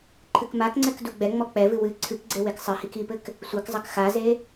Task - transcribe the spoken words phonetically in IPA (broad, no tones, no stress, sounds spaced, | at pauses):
ǃʰ ɨ k m a k ŋ͡ǀ ɛ k d u ɡ͡b ɛ ŋ͡m ɔ k͡p ɛ v ɨ w ɨ ǀʰ ɨ k ɡ͡ǀ e w e k sˤ ɨ h i k i p ɘ k | sʷ ɛ k zˤ ɐ k x a z e